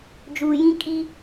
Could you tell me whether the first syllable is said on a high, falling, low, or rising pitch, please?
low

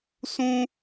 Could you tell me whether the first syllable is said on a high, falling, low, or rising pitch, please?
high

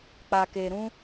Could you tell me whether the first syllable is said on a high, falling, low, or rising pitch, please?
low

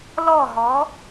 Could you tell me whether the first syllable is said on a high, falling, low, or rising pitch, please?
falling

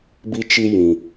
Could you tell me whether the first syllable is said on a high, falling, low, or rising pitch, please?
high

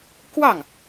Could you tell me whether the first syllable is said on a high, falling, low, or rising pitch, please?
falling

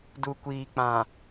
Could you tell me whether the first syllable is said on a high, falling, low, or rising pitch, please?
low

